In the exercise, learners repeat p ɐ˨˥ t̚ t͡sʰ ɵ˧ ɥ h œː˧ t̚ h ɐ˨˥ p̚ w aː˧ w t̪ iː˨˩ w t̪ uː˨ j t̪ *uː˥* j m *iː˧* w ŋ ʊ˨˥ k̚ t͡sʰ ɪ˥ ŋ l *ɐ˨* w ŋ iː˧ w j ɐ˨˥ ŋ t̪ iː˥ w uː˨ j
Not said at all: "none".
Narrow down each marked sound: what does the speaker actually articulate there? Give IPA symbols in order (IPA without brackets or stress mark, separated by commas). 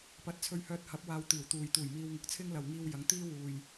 uː˨˩, iː˧, ɐ˨